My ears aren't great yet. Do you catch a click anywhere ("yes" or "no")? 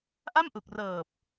no